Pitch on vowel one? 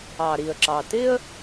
low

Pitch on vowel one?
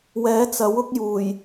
rising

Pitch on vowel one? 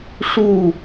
falling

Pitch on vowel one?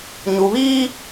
low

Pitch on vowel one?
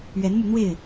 rising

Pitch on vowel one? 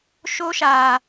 high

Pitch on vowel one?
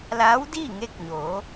rising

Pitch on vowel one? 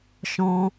high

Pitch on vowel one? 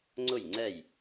falling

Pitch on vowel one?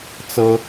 high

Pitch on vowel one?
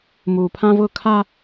low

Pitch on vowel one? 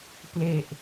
low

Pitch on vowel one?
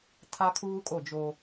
high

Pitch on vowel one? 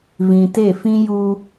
low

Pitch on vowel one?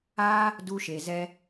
high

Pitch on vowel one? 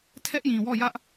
high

